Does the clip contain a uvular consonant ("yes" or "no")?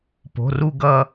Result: no